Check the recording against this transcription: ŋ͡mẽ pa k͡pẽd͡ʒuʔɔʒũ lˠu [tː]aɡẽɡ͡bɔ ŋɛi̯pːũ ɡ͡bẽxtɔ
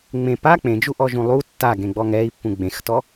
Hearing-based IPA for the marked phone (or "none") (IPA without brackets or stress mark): tː